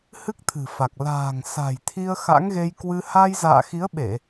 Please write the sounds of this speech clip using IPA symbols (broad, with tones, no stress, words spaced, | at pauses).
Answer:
hɨ˦˥k̚t̪ʰɨ̤˨˩fa˨˩k̚ la̤ː˨˩ŋ sa̤˨˩jt̪ʰi˧ə̯ xa̰˧˥ŋɣe˧jkwɨ˧ ha˧j za̰ː˧˨xi˨˦ə̯ɓe˧˩˨